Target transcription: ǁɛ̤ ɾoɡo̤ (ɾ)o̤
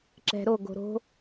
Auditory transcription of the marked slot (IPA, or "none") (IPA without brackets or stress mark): ɾ